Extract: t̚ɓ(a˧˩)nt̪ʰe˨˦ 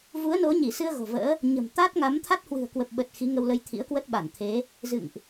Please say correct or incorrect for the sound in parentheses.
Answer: correct